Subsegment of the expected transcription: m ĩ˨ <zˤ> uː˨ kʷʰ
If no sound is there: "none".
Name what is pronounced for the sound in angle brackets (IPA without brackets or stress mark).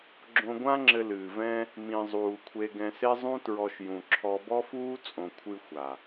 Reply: zˤ